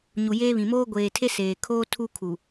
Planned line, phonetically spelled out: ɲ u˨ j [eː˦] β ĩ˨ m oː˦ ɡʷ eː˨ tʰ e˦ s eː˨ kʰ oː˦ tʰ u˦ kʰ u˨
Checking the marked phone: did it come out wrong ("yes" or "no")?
no